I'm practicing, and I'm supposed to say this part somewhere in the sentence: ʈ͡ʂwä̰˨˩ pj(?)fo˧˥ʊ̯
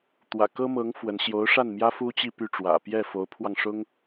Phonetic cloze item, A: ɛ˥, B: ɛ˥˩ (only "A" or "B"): B